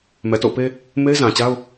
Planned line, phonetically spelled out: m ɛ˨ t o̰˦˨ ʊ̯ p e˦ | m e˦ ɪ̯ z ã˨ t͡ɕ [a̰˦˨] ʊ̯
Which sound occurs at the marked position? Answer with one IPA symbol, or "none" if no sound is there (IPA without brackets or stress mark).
a˦